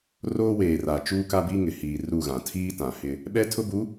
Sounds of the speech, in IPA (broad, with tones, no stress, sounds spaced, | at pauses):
r oː˦ w eː˨ r a˨ t͡ʃ uː˦ k a˦ b i˦ ŋ ɪ˨ h iː˨ r u˦˨ ɣ ã˨ tʰ iː˦ t ã˨ h ɪ˦ | ɓ ɛ˦ tʰ ʊ˦ b u˨˦